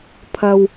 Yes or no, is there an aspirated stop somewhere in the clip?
yes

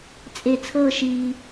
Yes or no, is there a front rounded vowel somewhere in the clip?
no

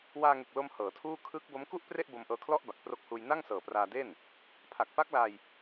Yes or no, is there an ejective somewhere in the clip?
no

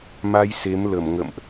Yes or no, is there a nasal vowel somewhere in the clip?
no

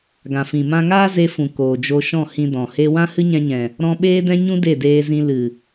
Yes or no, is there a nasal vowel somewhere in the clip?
yes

